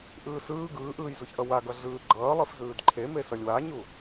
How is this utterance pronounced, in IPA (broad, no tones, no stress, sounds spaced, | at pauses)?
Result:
ʔ ɯː s ɯː ɡ ɯː ʔ ɯː j z u ç ʔ ʌ w a ɡ ʌ ɮ ɯː ɡ͡ǃ ʌː lˠ i f z ɯː d ǃʰ e m e s ʌ lʲ w a ɲ u